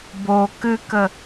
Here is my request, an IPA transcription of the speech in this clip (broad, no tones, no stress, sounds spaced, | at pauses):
b o k ɨ k ə